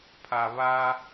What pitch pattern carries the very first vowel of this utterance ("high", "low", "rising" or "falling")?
low